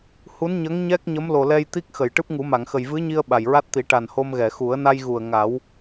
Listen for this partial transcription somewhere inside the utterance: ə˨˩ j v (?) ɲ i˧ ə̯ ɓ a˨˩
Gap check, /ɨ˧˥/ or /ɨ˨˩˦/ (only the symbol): ɨ˧˥